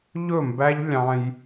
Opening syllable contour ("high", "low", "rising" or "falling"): falling